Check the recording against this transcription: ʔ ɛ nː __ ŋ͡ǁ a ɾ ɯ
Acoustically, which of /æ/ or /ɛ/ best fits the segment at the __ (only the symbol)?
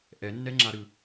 ɛ